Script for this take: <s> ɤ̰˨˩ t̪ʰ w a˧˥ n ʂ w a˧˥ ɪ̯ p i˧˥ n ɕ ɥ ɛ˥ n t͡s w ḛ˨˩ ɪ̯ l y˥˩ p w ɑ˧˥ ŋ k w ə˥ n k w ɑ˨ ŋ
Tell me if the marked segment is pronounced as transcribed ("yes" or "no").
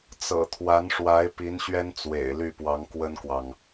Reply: no